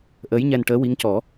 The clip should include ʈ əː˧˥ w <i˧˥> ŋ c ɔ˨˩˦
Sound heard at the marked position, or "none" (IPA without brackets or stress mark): i˧˥